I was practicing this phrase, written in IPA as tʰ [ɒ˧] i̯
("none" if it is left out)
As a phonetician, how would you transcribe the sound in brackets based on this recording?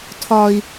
ɒ˧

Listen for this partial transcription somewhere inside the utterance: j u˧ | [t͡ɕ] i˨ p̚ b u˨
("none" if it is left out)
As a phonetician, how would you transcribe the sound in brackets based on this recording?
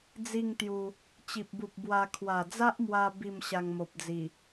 t͡ɕ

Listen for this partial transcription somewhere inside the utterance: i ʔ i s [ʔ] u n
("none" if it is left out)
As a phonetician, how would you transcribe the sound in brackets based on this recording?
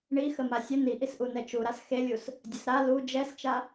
ʔ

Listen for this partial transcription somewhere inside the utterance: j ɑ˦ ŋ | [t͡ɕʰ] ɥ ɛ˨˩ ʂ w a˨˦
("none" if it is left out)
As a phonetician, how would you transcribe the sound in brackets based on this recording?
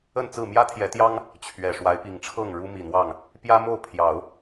t͡ɕʰ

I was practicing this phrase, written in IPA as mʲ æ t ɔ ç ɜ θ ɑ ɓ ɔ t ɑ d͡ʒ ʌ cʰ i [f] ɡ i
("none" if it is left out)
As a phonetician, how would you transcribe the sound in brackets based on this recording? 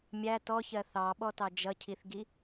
θ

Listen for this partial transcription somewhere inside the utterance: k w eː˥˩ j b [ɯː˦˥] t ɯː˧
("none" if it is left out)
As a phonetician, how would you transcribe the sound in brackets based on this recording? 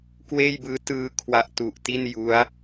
ɯː˦˥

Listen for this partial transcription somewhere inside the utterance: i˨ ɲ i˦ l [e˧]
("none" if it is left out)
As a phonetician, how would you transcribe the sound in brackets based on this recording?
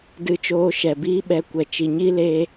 e˧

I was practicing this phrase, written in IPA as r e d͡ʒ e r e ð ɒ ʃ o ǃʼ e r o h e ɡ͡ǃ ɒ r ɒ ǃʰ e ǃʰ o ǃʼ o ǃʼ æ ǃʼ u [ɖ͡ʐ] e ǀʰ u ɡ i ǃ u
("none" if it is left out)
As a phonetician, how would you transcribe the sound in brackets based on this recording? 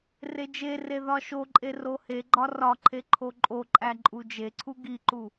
d͡ʒ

